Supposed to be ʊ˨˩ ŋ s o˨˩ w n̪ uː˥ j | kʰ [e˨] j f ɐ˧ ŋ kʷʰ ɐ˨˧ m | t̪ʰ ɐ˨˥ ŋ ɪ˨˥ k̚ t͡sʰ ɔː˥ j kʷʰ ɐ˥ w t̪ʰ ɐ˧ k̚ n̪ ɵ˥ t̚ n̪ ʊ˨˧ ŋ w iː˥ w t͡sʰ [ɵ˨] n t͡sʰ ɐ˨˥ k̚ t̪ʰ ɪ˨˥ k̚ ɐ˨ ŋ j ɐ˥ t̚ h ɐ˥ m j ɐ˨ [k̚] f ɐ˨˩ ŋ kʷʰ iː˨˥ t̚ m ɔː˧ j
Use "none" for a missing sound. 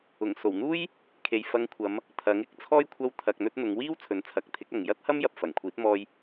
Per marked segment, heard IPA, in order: e˨, ɵ˨, p̚

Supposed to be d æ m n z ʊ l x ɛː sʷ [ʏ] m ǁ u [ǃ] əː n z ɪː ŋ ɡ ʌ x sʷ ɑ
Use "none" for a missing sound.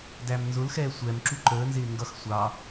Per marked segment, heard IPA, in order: ɛ, ǃ

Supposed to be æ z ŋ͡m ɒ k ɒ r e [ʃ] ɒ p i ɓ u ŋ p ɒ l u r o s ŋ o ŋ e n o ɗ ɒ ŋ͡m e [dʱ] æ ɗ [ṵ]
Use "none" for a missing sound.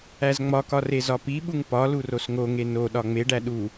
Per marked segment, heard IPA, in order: z, ɖ, u

